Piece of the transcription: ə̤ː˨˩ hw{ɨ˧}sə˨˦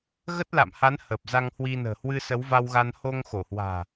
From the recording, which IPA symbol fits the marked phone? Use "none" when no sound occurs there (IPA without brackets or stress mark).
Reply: ɨ˧